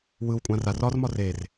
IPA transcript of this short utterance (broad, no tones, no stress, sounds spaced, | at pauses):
w ɯ w kʷʼ ã r a r ɒ r m ɒ r e r